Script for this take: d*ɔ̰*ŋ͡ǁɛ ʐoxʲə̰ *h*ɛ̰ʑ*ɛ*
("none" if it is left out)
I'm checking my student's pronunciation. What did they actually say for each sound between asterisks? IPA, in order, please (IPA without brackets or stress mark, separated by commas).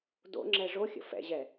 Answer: o̰, f, ɛ